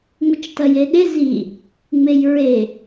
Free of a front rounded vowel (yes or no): yes